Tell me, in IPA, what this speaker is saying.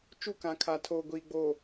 t͡ʃu˦˨kã˨˦ kʰa˨tʰoː˨ ɡʷiː˨ɡ͡boː˨

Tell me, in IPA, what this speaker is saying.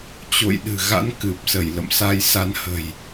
t͡ɕo̰˧˨jɗɨ̤˨˩ɣa̰˧˥n kɨ˨˩p̚sə˧˩j lə̰˧˨msa˧jsa˧nhə̤˨˩j

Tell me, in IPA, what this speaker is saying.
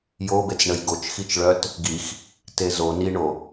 jobet͡sɳəj ɡot͡ʃxit͡ʃɭœt | ɡix | tezo niɳo

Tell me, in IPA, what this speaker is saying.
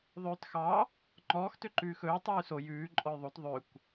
ðˤøːtxɑ | ŋ͡ǃɔːx tøǃʉːxɵː tˤʉːso jʉː ǃʼɔjðˤot ðˤøkʷ

